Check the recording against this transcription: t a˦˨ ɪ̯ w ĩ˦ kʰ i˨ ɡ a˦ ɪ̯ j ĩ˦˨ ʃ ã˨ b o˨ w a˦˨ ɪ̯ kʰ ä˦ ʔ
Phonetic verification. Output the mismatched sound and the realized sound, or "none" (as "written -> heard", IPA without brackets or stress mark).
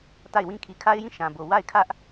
ɡ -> kʰ